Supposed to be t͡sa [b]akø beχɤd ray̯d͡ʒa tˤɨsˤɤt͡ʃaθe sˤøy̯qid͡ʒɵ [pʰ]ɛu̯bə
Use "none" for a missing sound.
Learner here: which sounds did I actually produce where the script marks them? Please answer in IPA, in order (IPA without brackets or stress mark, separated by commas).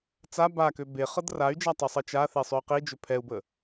b, pʰ